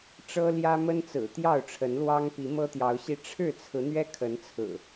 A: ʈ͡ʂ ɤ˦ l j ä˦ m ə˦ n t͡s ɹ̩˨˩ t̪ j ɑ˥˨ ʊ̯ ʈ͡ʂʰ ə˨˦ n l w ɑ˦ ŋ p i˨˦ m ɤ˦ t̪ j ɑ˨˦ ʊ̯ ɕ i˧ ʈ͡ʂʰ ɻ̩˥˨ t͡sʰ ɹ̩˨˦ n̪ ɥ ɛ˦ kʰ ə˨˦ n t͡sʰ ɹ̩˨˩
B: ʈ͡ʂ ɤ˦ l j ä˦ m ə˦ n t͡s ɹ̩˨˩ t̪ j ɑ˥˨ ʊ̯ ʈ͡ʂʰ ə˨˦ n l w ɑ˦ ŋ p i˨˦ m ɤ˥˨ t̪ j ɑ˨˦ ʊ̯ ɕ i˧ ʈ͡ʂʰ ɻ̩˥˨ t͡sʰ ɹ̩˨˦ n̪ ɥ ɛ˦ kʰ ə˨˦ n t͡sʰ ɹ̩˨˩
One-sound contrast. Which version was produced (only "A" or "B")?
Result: A